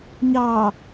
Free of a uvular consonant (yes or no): yes